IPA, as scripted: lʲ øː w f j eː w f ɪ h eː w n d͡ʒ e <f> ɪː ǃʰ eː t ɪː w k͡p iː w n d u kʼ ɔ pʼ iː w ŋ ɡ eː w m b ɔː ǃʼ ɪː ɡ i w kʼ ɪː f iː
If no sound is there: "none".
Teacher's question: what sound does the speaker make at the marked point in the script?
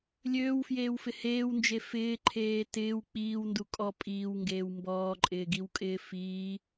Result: f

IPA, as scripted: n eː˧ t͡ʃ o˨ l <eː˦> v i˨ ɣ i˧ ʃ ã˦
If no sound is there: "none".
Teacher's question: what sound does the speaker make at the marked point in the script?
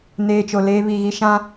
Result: eː˧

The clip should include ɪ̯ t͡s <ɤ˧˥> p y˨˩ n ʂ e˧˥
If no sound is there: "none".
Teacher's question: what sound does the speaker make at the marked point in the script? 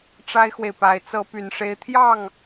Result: ɤ˧˥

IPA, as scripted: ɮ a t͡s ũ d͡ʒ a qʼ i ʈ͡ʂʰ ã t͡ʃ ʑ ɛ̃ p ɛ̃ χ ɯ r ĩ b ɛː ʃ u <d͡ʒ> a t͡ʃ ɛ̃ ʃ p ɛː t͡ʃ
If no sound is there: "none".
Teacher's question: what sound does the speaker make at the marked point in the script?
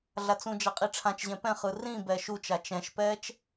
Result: t͡ʃ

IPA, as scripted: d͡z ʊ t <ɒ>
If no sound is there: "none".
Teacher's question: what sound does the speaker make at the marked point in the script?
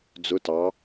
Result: ɑ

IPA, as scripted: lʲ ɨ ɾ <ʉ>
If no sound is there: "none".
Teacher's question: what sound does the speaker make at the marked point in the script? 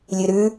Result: ʉ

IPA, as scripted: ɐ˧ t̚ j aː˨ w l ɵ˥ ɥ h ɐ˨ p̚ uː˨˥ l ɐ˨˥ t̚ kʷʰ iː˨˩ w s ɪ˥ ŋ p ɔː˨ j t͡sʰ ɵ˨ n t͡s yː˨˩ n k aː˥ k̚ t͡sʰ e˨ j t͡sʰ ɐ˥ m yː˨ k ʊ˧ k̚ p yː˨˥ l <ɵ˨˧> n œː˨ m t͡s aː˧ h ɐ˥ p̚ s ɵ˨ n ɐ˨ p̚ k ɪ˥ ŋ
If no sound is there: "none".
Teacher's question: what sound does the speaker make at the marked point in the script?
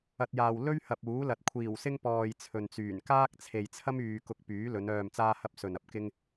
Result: ɵ˨˧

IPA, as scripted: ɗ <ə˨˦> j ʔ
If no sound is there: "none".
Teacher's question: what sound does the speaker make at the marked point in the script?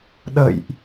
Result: ə̰˧˨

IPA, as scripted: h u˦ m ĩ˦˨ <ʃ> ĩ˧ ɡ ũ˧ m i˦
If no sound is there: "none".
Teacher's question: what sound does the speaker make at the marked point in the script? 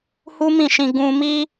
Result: ʃ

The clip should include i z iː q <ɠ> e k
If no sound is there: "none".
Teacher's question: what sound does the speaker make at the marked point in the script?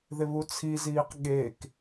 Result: ɠ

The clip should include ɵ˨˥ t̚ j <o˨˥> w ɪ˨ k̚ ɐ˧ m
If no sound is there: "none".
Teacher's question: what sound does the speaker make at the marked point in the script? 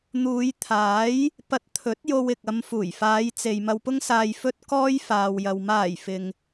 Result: o˧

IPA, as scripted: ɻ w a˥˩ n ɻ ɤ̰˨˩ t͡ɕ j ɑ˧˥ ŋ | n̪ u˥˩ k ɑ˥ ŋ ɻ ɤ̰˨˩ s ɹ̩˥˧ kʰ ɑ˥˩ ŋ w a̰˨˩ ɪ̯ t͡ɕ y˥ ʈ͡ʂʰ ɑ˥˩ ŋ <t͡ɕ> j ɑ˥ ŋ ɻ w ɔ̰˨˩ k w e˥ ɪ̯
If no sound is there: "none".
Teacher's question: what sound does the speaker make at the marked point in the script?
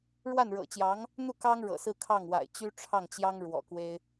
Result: t͡ɕ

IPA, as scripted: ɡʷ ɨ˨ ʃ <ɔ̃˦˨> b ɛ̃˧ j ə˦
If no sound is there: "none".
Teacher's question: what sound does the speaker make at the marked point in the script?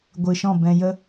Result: ɔ̃˦˨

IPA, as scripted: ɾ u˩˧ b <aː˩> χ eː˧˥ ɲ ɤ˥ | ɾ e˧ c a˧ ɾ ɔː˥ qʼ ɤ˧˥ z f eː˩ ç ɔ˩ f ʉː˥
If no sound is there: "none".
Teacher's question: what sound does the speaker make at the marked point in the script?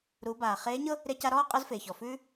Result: aː˩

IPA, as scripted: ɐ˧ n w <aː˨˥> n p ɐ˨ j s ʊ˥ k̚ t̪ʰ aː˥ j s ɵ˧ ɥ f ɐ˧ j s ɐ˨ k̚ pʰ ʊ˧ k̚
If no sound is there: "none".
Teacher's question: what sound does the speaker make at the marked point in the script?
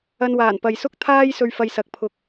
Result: aː˨˩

